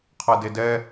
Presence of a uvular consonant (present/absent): present